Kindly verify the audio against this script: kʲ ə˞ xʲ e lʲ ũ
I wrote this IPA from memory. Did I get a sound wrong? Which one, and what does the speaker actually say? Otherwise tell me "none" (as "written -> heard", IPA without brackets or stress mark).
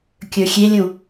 none